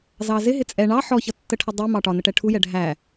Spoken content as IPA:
z ɑ z ɪ ɦ ɪ t͡sʼ ɛ ɳ ɑ ħ ɔ ç ʌ tː ə ʈʰ ə dˤ ɪ m ɑ ʈ ɒ n ə ʈ ɛ ʈʰ u j ɛ ɖʱ æ

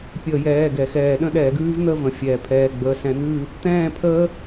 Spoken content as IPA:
pʲ əː˧˩˧ j ɛː˩˧˩ ɡ ɛ˩ x ɛː˧˩˧ ɗ ə̃˥˨ ɗ ɛː˧˩˧ ɡ ʉː˦˥ v n̪ ə˥˨ v ə̃˩ fʲ ɛː˩ pʰ ɛː˩˧˩ ɡ͡b əː˩˧˩ s ɛ̃˧˩˧ n̪ ʉː˥˨ | t̪ ɛ̃ː˥˨ pʰ əː˦˥

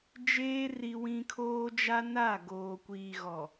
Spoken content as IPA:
d͡ʒ eː˦ r i˦ w ĩ˦ kʰ oː˦ d͡ʒ a˦ n a˦˨ ɡ oː˨ kʷ iː˨ ɣ ɔ˨

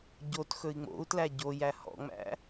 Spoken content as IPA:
ɟ o t x ɵ i̯ ŋ͡m o̰ u̯ t l æ ɟ o j æ h ɔ̰ ŋ͡m æ̰

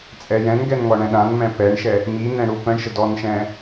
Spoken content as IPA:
t͡sʼ ɛ j ɛ̃ n ɡ ɛ n ŋ ɔ ɳ ɛ̃ ɗ ã n m ɛ̃ p ɛ ɳ ʃ ɛ | m i n ɛ̃ ɽ u p ə̃ ɳ ʃ ə d ɔ n ʃ ɛ̃

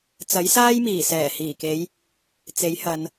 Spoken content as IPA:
t͡s ɐ˨˥ j s aː˥ j m iː˨˩ s ɛː˨˩ h iː˨˩ k e˨˧ j | t͡s e˨˥ j h ɐ˨˧ n

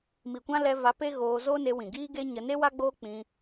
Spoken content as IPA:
m i˨ kʷ ã˦ l ɛ˧ v a˨˦ p e˦ ɣ oː˧ z oː˦ n e˧ w ĩ˨ ɡ iː˦ ɡ e˦ ɲ ə˧ n e˦ w a˦ ɡ͡b oː˦ k͡p ĩ˧

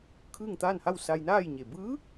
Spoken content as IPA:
kʰ ɯː˥˨ ŋ t̪ aː˥˨ n h a˥˨ w s a˧ j n aː˥˨ j ɲ e˩ b ɯː˧˥

